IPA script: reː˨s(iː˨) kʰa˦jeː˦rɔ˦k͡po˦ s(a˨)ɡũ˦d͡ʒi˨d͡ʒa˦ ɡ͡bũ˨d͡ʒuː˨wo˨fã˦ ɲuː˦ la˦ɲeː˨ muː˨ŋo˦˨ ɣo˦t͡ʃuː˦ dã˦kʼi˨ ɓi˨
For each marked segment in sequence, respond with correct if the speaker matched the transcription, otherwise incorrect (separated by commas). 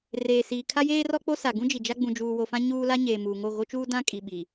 correct, correct